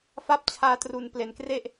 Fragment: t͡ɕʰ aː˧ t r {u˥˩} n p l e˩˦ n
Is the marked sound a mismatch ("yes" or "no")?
yes